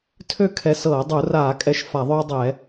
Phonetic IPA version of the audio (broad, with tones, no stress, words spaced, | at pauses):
tʰø˦˨kʰɛ˨˦sɤː˧˩˧ dˤu˧˩˧raː˧˩˧kʼɛ˨˦ʃ fa˧˩˧ðˤøː˦dˤɛː˧˩˧